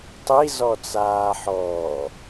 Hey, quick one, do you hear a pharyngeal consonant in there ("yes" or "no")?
yes